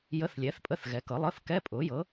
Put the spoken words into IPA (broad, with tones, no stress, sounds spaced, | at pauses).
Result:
j ə˧˥˧ θ lʲ ɛː˩˥ θ pʼ ə˧˥˧ θ ɣ ɛ˩˥ k ɤ˩˥ lˠ ɤ˧˥˧ θ k ɛ˧˥˧ pʼ ʊː˩˥ j ɤ˩˥